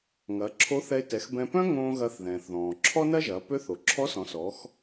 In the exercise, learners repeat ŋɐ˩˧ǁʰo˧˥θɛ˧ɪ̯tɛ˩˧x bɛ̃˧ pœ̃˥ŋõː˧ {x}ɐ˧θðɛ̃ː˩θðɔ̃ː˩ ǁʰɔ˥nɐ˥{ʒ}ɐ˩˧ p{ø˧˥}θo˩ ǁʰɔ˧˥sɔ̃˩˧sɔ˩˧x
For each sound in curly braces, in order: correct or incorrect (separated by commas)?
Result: incorrect, correct, correct